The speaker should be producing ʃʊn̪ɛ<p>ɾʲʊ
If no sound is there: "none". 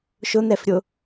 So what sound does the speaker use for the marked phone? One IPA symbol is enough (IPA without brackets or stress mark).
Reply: f